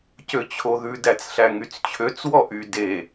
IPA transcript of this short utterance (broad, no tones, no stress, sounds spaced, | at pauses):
c ø t͡ɕʰ o ð ʉ d æ t͡s ɬ æ ŋ y t͡s t͡ɕʰ ø t͡s w ɔ ʔ y d e